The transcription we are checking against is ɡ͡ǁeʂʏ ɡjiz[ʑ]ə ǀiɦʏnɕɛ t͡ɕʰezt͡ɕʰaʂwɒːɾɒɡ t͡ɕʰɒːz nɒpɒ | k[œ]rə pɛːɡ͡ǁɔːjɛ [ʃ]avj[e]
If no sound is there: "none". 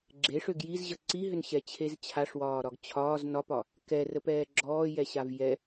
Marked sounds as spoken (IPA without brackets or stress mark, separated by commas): ʑ, ɛ, ɕ, ɛ